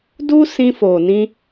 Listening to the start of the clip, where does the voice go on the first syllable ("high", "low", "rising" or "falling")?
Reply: high